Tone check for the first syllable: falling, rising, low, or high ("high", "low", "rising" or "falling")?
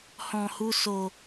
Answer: low